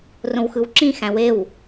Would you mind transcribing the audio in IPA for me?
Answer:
r õ w x ɯ w ǁ ĩ x æ̃ w e w

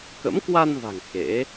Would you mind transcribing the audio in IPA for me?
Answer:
k ə̰˧˥ m k w a˧ n v a̤˨˩ ŋ x ḛ˧˥

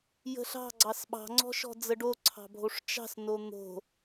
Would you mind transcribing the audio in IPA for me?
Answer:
j ə̤ ɬ ɑ̤ ɡ͡ǀ ɑ s ɓ ɑ̤ ŋ͡ǀ ɔ̤ ʃ ɔ̤ d͡z ə ɖ o ǀʰ ɑ̤ bʱ o ʂ t͡ʃ ɑ̤ s n o n̪ o̤

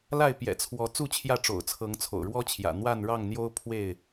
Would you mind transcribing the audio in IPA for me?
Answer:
l a˥˨ ɪ̯ p j ɛ̰˨˩ t͡sʰ w ɔ˨˦ t͡s u˥˨ t͡ɕʰ j ä˥˨ ʈ͡ʂ o̰˨˩ ʊ̯ t͡sʰ ɤ˨˦ ŋ t͡sʰ o̰˨˩ ʊ̯ ɻ w ɔ˦ t͡ɕʰ j ä̰˨˩ n̪ w a˥˨ n ɻ ɑ˥˨ ŋ n̪ j o˦ ʊ̯ pʰ w e˥˨ ɪ̯

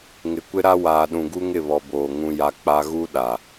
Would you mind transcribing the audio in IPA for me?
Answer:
ŋ ɪ˨ kʷ ɪ˦ ɾ a˦ w aː˨ ɗ ũ˨ ɡ u˦ ŋ ɪ˦˨ β ɔ˨ b oː˨ ŋ ũ˦ j a˦ k͡p a˦ ɣ u˦ ɗ a˨

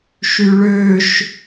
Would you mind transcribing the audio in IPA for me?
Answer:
ʃ y ɭ ø ʃ

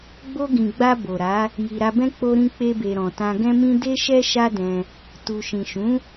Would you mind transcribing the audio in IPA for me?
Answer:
ɡ͡b o˧ ɡ ĩ˨ ɡ͡b a˧ b o˨ ɾ a˨˦ | j i˨ ɾ a˧ b ɛ̃˦ k͡p o˧ ɾ ĩ˧ k͡p e˧ b e˨ ɾ ɔ̃˨ t ã˧ ɡ ɛ̃˦ m ĩ˦ d e˦ ʃ ɛ˦ ʃ a˦ d ɛ̃˧ | t u˨ ʃ ĩ˨ ʃ ũ˨˦

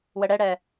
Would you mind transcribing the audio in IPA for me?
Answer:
w ə ɽ ɛ ɽ ɛ

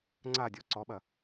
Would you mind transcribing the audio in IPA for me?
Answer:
ŋ͡ǀ a dʲ ɔ ǀ ɔ ɓ ɐ

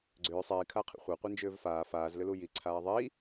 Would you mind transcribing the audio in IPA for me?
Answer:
ɡ͡ǀ ʏː sˤ iː kʰ a qʰ ḭ χʷ a qʷ i n d͡ʒ ʏː v f aː f aː z l ʏ l u j i ǀʰ aː ðˤ i

